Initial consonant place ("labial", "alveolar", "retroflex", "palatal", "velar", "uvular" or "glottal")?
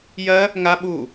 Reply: palatal